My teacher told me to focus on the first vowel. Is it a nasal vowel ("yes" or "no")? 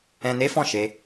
yes